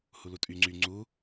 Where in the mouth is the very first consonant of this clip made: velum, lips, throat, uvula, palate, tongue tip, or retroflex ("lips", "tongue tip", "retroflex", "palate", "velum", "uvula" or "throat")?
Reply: throat